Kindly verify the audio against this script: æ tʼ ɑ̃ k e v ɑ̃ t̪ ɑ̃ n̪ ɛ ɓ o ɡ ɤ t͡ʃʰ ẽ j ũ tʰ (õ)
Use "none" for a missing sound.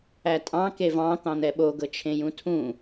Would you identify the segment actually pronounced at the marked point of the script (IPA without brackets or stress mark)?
ũ